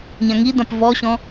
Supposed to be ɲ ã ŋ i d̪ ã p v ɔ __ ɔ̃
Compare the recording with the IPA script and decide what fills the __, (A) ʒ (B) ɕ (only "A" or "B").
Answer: B